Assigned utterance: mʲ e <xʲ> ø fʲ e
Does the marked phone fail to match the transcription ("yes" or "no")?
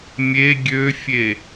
yes